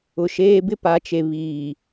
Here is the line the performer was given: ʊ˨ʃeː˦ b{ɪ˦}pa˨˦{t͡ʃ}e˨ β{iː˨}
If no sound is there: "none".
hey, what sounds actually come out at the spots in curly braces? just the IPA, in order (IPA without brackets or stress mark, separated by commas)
ɪ˦, t͡ʃ, iː˨